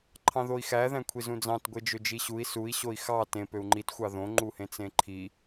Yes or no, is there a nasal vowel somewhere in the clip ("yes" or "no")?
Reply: yes